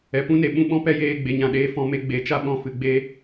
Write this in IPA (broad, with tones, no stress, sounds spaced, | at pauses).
ɛ˨ p ũ˦ n e˨ ɓ ũ˦ ɓ ɔ̃˦ p ɛ˦ j eː˦˨ ɡ͡b e˧ ɲ ã˧ ɗ eː˦ f ɔ̃˧ m e˧ ɡ͡b e˨˦ t͡ʃ a˦ ɓ ɔ̃˦˨ f ɨ˧ ɡ͡b e˦